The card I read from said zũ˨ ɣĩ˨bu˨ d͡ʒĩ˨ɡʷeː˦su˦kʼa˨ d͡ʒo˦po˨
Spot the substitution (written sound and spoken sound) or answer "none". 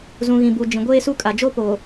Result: none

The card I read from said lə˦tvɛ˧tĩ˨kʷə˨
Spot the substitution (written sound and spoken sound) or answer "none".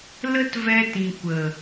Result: none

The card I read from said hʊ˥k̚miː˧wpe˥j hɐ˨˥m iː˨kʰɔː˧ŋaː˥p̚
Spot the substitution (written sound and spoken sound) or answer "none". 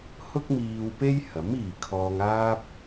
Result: none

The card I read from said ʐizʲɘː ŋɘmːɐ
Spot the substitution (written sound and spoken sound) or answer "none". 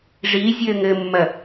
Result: none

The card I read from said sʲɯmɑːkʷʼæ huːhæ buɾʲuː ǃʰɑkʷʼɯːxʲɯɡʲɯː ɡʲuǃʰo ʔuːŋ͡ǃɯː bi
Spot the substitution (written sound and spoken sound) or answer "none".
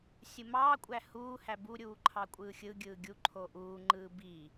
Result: none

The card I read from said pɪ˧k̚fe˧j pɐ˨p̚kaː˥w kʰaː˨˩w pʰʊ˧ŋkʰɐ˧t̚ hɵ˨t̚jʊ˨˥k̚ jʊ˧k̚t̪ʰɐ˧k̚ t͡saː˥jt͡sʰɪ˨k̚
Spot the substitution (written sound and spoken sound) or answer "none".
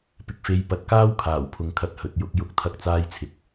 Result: p̚ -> t̚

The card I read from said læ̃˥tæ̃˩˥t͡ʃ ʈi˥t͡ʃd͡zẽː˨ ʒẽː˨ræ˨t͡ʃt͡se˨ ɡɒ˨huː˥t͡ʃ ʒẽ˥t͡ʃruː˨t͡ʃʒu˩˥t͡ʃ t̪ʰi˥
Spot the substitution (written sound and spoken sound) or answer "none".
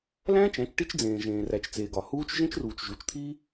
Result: t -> t͡ʃ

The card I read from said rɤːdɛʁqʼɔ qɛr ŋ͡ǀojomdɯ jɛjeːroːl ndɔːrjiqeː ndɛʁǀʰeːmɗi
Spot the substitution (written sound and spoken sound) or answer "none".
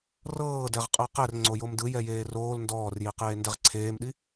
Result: ɔ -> ɤ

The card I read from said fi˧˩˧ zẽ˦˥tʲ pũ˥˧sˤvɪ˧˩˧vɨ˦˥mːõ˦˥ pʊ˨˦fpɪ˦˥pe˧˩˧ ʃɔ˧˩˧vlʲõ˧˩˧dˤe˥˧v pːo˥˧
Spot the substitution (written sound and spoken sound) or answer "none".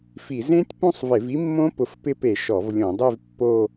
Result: ɨ˦˥ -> i˦˥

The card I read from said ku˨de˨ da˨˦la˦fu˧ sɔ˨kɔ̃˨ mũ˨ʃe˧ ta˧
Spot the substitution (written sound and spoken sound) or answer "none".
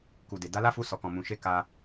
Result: t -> k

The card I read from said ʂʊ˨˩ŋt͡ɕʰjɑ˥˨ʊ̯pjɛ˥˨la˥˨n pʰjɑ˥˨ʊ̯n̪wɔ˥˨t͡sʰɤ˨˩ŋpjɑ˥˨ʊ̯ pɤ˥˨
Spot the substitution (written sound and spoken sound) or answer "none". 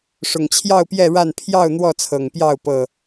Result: l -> ɻ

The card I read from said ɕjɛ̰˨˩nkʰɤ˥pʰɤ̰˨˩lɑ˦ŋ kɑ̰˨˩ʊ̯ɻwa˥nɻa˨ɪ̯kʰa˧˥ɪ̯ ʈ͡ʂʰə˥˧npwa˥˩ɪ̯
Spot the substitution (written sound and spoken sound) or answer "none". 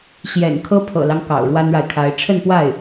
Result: none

